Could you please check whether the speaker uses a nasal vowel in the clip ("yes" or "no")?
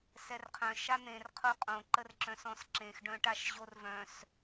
yes